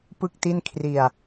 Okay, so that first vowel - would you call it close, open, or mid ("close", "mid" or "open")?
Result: close